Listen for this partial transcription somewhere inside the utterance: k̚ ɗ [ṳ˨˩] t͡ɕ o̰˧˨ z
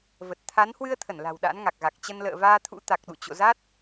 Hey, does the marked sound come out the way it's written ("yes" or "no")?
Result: no